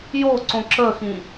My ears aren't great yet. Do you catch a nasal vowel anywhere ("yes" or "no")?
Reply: yes